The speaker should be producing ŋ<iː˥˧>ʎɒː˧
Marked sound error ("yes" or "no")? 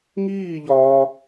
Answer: no